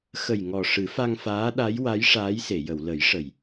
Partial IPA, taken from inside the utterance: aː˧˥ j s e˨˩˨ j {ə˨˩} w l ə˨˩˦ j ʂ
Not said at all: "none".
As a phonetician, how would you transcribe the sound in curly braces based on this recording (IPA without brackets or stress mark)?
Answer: ə˨˩˨